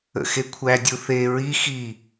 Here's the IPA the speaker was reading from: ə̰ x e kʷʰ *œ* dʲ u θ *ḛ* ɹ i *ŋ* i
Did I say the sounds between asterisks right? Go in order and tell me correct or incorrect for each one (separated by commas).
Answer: incorrect, incorrect, incorrect